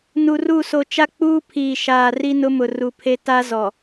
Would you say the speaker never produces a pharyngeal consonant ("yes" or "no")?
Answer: yes